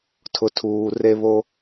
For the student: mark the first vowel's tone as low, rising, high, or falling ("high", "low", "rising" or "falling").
low